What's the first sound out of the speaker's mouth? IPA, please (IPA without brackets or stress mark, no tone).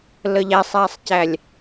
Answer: l